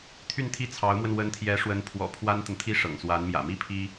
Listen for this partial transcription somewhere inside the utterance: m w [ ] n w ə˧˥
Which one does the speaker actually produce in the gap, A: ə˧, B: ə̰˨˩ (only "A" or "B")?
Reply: A